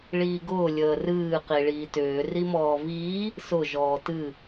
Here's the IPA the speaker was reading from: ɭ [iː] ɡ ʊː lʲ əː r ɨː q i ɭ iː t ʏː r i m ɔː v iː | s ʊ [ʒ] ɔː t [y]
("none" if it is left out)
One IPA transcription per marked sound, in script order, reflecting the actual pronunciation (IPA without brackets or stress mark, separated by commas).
iː, ʒ, ɨ